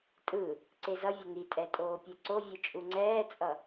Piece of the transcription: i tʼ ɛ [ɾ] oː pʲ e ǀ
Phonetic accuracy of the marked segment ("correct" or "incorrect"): incorrect